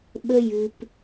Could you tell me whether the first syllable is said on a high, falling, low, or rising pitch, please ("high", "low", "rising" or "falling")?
high